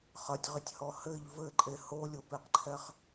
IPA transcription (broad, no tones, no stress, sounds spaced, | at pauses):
χ ɐ tʲ ʁ i tʲ h ɔ h ɘ ʎ v ɘ ǃʼ e h o lʲ o p e q ǃʰ ɛ χ